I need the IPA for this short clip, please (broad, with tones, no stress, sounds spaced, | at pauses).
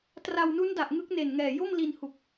t r a˧ w n u˦˥ n d a˨˩ ʔ ŋ ɯ˦˥ k̚ n e˨˩ n ŋ ɛː˨˩ j o˥˩ m l i˧ n h u˨˩ k̚